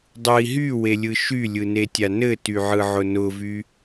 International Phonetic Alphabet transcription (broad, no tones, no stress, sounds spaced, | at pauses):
dˤ ɯ i̯ ɦ y w e lʲ ɯ ʃ y lʲ ɯ n e tʲ a n ɘ t y ʕ ɯ ʕ ʊ n ʊ v y